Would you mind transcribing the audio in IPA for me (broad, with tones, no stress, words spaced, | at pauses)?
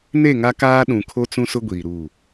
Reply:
ne˦˨ŋa˦kaː˦ ɗũ˨kʰo˦t͡sũ˦sʊ˦ ɡʷiː˨ɾu˦˨